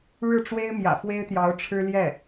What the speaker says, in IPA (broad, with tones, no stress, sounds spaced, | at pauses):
ɻ ɻ̩˥˩ ʈ͡ʂ w e˥ ɪ̯ m j ä̰˨˩ f w e˥ ɪ̯ t̪ j ɑ˧˥ ʊ̯ ʈ͡ʂʰ ɻ̩˥ l j ɛ˥˩